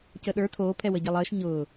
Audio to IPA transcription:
c əː ɗ ə˞ tʰ oː pʰ ɛ w ə ɟ ɛ lˠ əː ʃ ɲ ʊː

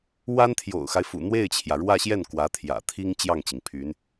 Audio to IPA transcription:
w a˥ n t̪ʰ j o̰˨˩ ʊ̯ x a˦ ɪ̯ f ṵ˨˩ n̪ w e˥˩ ɪ̯ t͡ɕʰ j ä˩ ɻ w ä˥˧ ɕ j ɛ˥˩ n k w ä˧˥ t̪ʰ j ä̰˨˩ t̪ʰ i˥ ŋ t͡ɕ j ɑ˥˩ ŋ t͡ɕ i˩ ŋ pʰ y˧˥ n

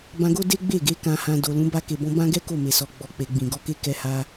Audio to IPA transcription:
b ã˧ ɡ o˦ d e˦ ɡ͡b e˦˨ ɡ e˨˦ k ã˧ h ã˧ d o˨ l ũ˨˦ b a˧ k e˨ b ɔ̃˧ b ã˦ ɡ ɛ˦ k o˦˨ m e˨ s ɔ˨ ɡ͡b ɔ˨ k͡p e˨ ɡ͡b ĩ˨ ɡ ɔ˧ k e˦ k ɛ˧ h a˧

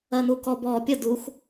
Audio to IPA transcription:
ɜ n u k ɔ b ɔ pʲ ə d u x

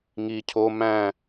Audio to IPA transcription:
ŋ i cʰ o m æ̃

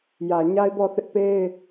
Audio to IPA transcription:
j ä˨ ɲ a˦ ɪ̯ b ɔ˦˨ θ ɪ˦ ʔ p e˦ ɪ̯

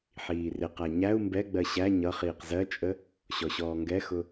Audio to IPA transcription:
ħ iː r ɪ q æ ɲ æ u̯ m b ɛ ɡ͡b ɜ ɕ æ ɲ ʌ χ iː q z ɜ t͡ʃʼ ə | ɕ ɔ ɕ ɔː ŋ ɡ ɛ x ʊ

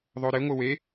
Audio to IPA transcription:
ðˤ o ɾ ɪ ŋʷ ɪ w e

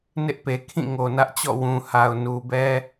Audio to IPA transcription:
n ɪ˦ ʔ p e˨ kʰ ĩ˦˨ ŋ o˨ n ä˦ ʔ t͡ɕ ɔ̰˦˨ w ũ˨ h a˨ ʊ̯ n u˨ b ɛ˦

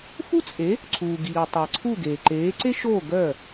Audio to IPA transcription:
f u˥ t͡sʼ e˩˥ | ǀʰ uː˩ ɡ iː˩ tˤ ɐ˩ ǀʰ u˥˩ ɡ eː˩ ǃ eː˩˥ ǀ e˥ ʃ oː˥˩ ɡ œ˥˩

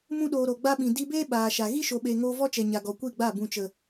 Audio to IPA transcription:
m ũ˧ ɗ oː˨ ɾ o˨ ɡ͡b a˦ ɓ ĩ˨ d i˧ b eː˦ ɓ aː˨ ʃ a˨ ɣ i˦ ʃ o˨ ɓ eː˨ ŋ oː˧ v ɔ˦ t͡ʃ ɛ˨ ɲ a˨ ɡ ɔ˨ kʷ i˦˨ ɡ͡b a˦˨ b ũ˨ t͡ʃ ə˨

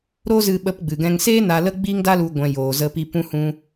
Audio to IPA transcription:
ɾ oː˦ z ɨ˧ ɓ ə˧ p ɡ͡b ɨ˨ ɡ ɛ̃˧ ŋ s eː˦ n a˧ l ə˦ ɡ͡b iː˦ ŋ d a˦ l u˧ ɡʷ ɛ̃˧ j oː˨ z ə˧ p i˧ p ũ˦ h ũ˦

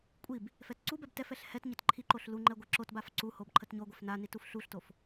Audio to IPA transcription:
kʷʼ i b | f ɛ t ǀ u b ɛ b t ɛ f ɛ ɬ h ɛ t ɲ ə t ǃʰ i ǃ o ɬ l u ŋ͡ǃ ɛ ɡʷ ɛ ǁ o t b a f ǀ u h o b ǃʰ ə t ɲ o ɡʷ ɛ f n a n i t u f ɬ u ɬ t o f

